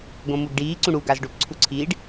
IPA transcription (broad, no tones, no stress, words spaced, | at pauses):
ɡõmuɡɖiː ǀũɽu ɡazɖop ǀʰuǀʰiːɖ